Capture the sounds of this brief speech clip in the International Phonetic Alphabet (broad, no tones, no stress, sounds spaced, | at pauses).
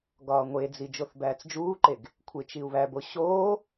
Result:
ɡ ɒː ŋʷ e d͡z i d͡ʒ o θ b æː t͡s d͡ʒ uː ǃ e ɡ | kʷʰ e t͡ʃ i u̯ β æ b o ɕ oː